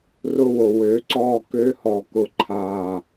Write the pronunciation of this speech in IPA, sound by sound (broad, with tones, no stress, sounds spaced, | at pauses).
r ʊ˦ w o˨ w ø˨˦ ǀ ɔ˦˨ k ø˦ h ɔ˦˨ k ʊ˦ ǃʰ aː˦˨